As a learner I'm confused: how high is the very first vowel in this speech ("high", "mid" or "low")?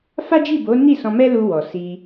low